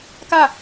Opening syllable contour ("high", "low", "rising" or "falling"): falling